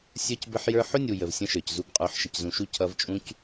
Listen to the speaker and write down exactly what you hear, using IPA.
sʲ ə˞˦ c b ə˦ ħ j ə˞˦ ħ ʊ˦ nʲ u˨ j ə˨ v sʲ ə̃˦ ʃ ə˞˨ c z u˦ b qʼ ə˞˨˦ ħ ʃ ə˨ c z ũ˨ ʃ u˦ cʰ ʌ˦ v t͡ʃʼ ũ˦ c

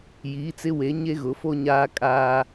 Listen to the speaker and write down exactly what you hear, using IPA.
j iː˨˦ t͡s ɪ˦ w e˨˦ ɲ e˦ ɣ ʊ˨˦ f o˦ ɲ aː˦ kʼ aː˦

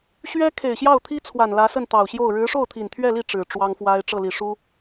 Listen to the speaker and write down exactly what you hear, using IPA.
ɕ ɥ ɛ˥ kʰ e˨˩ ɪ̯ ɕ j ɑ˥˩ ʊ̯ t̪ʰ i˥ t͡sʰ w a˨˩ n l ä˧˥ s ə˥˩ n t̪ ɑ˨˩ ʊ̯ ɕ j o˥˩ ʊ̯ ɻ ɻ̩˧˥ ʂ o˥˩ ʊ̯ t̪ʰ i˨˩ n t̪ʰ ɥ ɛ˥˧ l i˥˩ ʈ͡ʂ ɻ̩˨˩ ʈ͡ʂ w ɑ˥ ŋ f w a˥ ɪ̯ ʈ͡ʂ ɤ˥˩ l i˨˩ ʂ u˥

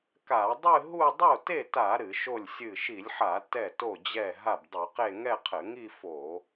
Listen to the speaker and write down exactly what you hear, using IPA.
k a˧˩˧ dˤ ɨ˥˧ ɦ u˥˧ dˤ o˥˩ t e˥˩ t a˧˩˧ ɾ ɨ˧˩˧ ʃ o˥˩ lʲ sʲ ɨ˥˩ ʃ i˧˩˧ lʲ ħ a˧˩˧ t ɛ˥˩ t o˥˩ d͡ʑ ɛ˥˩ ɦ a˥˩ b dˤ u˧˩˧ q e˥˧ ŋ ɛ˥˧ qʰ ɘ˧˩˧ ŋ i˥˧ f o˧˩˧

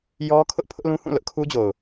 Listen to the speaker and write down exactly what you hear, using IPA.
j ɔ˦ kʰ ʊ˦ ʔ pʰ ʊ˦ ʔ l ũ˦ h ũ˦˨ l ʊ˦ ʔ kʰ u˦ d͡ʑ o˨ ʊ̯

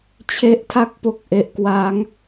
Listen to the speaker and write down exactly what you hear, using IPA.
t͡ɕʰ e˦˥ ʔ tʰ a˥˩ k̚ p o˦˥ k̚ ʔ e˨˩ ʔ k w aː˦˥ ŋ

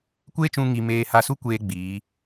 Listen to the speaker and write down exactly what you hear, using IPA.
kʷ eː˦ t͡ʃ ũ˧ ŋ i˧ m eː˧ h a˧ s u˦ kʷ eː˦ ɡ͡b iː˨˦

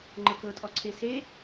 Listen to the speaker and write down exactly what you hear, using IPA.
ŋ͡ǃ ɤ k ɤ tʼ ɔ ǀʰ e s e

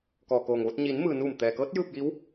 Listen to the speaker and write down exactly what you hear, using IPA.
k ɔː˩ k oː˩ ŋ ʋ o˧ t̚ ɲ iː˩˧ n m ɯː˩ n uː˧˩ m t̪ ɛː˩ k ɤː˧˥ t̚ j ɯː˥˨ p̚ j i˧˥ w

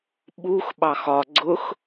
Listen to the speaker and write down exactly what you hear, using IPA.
ɓ u x ɓ ɑ x ɒ ɡ͡ǀ ʊ x

